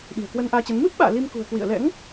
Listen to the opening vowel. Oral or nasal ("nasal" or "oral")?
oral